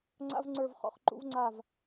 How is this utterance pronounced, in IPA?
ŋ͡ǀ a̰˥ v ŋ͡ǀ ə˞˥˨ v χ ɔ̰˥˨ χ ǃ ṵ˥ v ŋ͡ǀ a˥˨ v

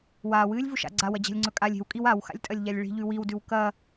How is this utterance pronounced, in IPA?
w aː w ɨː lʲ v u ʃ a̰ ɡ͡ǀ a w ɐ d͡ʑ a̤ lʲ ŋ͡ǀ ɵ kʼ a lʲ e̤ w kʼ i w a w x a̰ lʲ tʼ ɐ lʲ ʎ a lʲ ɭ i̤ ʎ ʉ w i w d ʉ w k ɐ

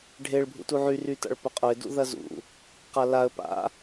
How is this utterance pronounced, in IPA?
ɖʱ e ɭ bʱ ṵ t u ʕ y r y t a̰ ɭ p ʊ qʼ ʊ ɪ̯ d ṵ ð ɐ z ṵ | q a l a ə̯ p a̰

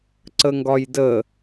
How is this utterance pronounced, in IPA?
ǀ ə ŋ ɡ ɒ j d ə

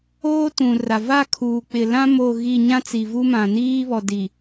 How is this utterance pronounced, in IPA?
oː˦ t ũ˨ r a˨ v a˦˨ kʰ uː˨ k͡p ɪ˨ l ã˦ m o˦˨ ɣ i˦˨ ɲ ã˦ t͡s i˨ v u˦ m ã˨ n iː˦ β ɔ˨ d i˨

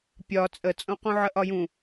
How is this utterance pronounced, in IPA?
pʲ ɒ t͡sʼ ə t͡sʼ õ q ũ ʕ ə ʔ ɒ j ũ

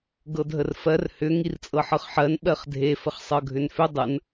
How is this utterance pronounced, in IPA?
ɡ ɤ dʱ ə r f ɜ r h ʏ ŋ i r t͡sʼ ɤ ħ ɤ χ ħ ɜ n ɓ ɜ χ dʱ e f ə χ sˤ ɤ ɡʱ ʏ n f ʏ dˤ ə n

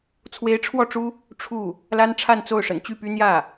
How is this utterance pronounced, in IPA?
t͡sʰ w e˧˥ ɪ̯ ʈ͡ʂʰ w ɔ˥˩ ʈ͡ʂ u˥ | ʈ͡ʂʰ u˥˩ | l a˥ n ʈ͡ʂʰ a˥˧ n t͡s o˥˩ ʊ̯ ʂ ə̰˨˩ n t͡ɕ y˥˩ p y˥ n̪ j ä˥˩

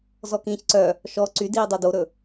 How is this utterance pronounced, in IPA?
z ɔ k ĩː ç ǀ œ | ʃ ɔ ǀ y d iː dˤ œ d o ɾ ɵ

